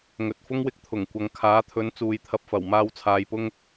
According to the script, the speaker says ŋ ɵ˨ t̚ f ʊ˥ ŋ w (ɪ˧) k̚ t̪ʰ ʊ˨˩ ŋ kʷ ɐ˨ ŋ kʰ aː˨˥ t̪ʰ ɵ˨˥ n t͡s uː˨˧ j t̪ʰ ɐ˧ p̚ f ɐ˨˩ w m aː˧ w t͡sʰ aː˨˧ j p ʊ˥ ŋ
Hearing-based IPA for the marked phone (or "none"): ɪ˧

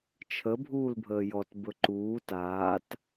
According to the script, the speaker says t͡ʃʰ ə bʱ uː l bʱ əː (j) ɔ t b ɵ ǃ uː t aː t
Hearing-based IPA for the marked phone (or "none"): j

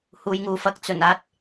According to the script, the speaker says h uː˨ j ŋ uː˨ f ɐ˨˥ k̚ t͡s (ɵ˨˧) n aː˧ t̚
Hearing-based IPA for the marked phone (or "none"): ɵ˨˩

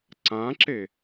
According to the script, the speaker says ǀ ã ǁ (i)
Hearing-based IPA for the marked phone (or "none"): e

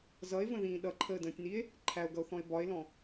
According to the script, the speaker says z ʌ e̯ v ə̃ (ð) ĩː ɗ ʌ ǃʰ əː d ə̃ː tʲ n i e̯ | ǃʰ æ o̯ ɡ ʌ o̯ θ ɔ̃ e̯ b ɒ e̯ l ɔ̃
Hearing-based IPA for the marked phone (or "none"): ð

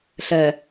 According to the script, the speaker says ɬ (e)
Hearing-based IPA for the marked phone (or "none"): ɛ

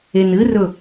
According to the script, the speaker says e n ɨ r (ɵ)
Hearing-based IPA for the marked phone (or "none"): ɵ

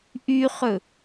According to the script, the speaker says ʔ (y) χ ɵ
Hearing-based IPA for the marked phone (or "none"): y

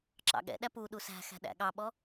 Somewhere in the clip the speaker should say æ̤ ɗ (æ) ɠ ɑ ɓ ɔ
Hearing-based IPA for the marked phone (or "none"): æ̰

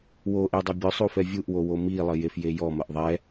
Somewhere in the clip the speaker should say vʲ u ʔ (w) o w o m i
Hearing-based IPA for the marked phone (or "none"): w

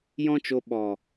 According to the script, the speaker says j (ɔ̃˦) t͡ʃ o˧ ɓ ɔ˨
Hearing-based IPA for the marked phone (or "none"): ɔ̃˦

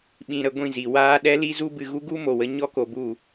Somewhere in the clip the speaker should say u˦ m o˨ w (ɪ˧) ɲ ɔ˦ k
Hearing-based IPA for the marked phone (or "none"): ə˧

